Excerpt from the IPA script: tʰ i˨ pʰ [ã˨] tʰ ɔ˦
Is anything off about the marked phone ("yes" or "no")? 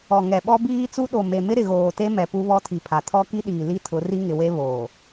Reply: yes